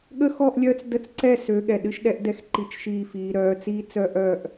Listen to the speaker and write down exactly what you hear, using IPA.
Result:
ɠ ə˥˧ x ɔ˥˧ ʔ lʲ œː˥ t͡s d ə˥˧ t͡s ǀ ɛ˥˧ s ø˨˦ ɠ ɛ˨ ɗ ɨ˥ ʃ ɗ ɛ˥ ʔ d ɛ˥˧ x ǃ i˥˧ t͡ʃ ʃ iː˥˧ f iː˨˦ ɾ œː˨˦ t͡s iː˥ t͡s œ˥ ʔ œː˥˧ ʔ

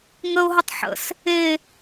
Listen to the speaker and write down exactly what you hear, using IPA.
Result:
ŋ ə ʊ̯ ɦ ə tˤ ħ ə̰ s | e

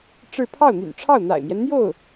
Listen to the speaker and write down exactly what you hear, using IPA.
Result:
ʈ͡ʂ ɻ̩˥˧ pʰ ɑ˥˩ ʊ̯ n̪ y̰˨˩ n ʈ͡ʂʰ ɑ˥˩ ʊ̯ n̪ a̰˨˩ ɪ̯ m j ɛ˦ n n̪ j o˥˩ ʊ̯

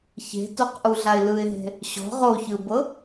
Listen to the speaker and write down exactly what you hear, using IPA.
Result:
ç e̤ t o q ʔ u ɮ a ɪ̯ l ɯ ɪ̯ ɦ e̤ | ɕ ɔ̤ ʁ o ç ɯ b ɤ

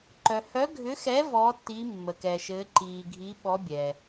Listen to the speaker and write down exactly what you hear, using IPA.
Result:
ǃ œ˨ h œ˨˥ ɡʱ ʏ˨˥ x ɛ˨˥ v ɔː˨˥ tː iː˨˥ mː ə˨ k ɛː˨ ʃ ɘː˨˥ ǃ iː˨ ɡʱ i˨˥ ɓ ɔ˨˥ bʲ ɛ˨

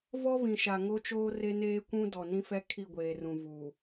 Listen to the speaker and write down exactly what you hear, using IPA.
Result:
v ɔ˦ β ĩ˨ ʃ a˨ ŋ o˦ t͡ʃ oː˦ r e˦ n eː˦ kʷ ũ˦ d ɔ˨ n ĩ˦ f ɛ˦ kʰ i˦˨ ɡʷ eː˨ r ũ˨ v u˨

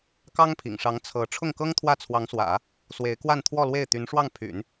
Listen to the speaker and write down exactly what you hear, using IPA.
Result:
k ɑ˥ ŋ pʰ ḭ˨˩ ŋ ʂ ɑ˧˥ ŋ t͡sʰ ɤ˧˥ ʈ͡ʂʰ ʊ˥˩ ŋ k ɤ˥ ŋ t̪ʰ w ä˥˩ t͡sʰ w ɑ˧˥ ŋ s w ä̰˨˩˦ | s w e˧˥ ɪ̯ k w a˥˧ n t̪ʰ w ɔ˥˧ l w e˥˩ ɪ̯ t̪ y˧˥ n ʂ w ɑ˥˩ ŋ pʰ y̰˨˩˦ n

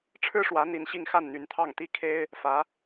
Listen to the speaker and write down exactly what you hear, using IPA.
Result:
ʈ͡ʂʰ ɻ̩˥ ʂ w ä˧˥ n̪ i˧˥ n ɕ i˥˧ ŋ x a˥˩ n n̪ y˧˥ n t̪ʰ ɑ˥˩ ŋ t̪ i˥ kʰ e˥ ɪ̯ | f ä˧˥

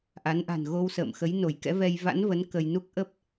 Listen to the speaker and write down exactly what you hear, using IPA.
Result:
ʔ a˨˦ n ʔ a̤˨˩ n ɣ o˧ w s ə̰ː˧˨ m x ə˨˦ j n o˧˩ j k ɛ̰˧˥ v ɛ˧ j v a̰˧˥ n v ə˨˦ n k ə˧ j n u˦˥ k̚ ʔ ə˦˥ p̚

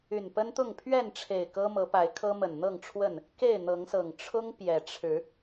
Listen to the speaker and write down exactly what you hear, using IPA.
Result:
y˨˩ n p ə˦ n t̪ ʊ˥˨ ŋ pʰ ɥ ɛ˥˨ n ʈ͡ʂʰ e˨˩ ɪ̯ k ɤ˦ m ɤ˨˦ p a˨˦ ɪ̯ kʰ ɤ˦ m ə˨˩ n n̪ ɤ˥˨ ŋ ʈ͡ʂʰ w ə˥˨ n | k e˥˨ ɪ̯ n̪ ɤ˨˦ ŋ s ɤ˨˩ ŋ ʈ͡ʂʰ ʊ˦ ŋ p j ɛ˨˩ ʈ͡ʂʰ ɻ̩˨˦

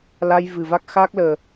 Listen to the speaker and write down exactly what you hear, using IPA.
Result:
l a˧ j v ɨ˨˩ v a˦˥ k̚ x aː˦˥ k̚ l əː˨˩

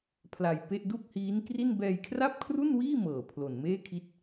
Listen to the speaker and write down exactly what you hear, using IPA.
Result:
pʰ l a˧ j p e˥˩ ʔ d u˥˩ k̚ h iː˦˥ n k r i˥˩ n b ɛː˧ j kʰ r a˥˩ p̚ kʰ r u˥˩ n w iː˥˩ m ɤː˨˩ pʰ l o˨˩ n m eː˥˩ kʰ i˦˥ t̚

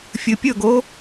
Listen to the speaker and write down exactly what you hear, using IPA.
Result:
fʲ ɨ pʲ ɵ ɡ o

